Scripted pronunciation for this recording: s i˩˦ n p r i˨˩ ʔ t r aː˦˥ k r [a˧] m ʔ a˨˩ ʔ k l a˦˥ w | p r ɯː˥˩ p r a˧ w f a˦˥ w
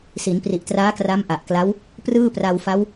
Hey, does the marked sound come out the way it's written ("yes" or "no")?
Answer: no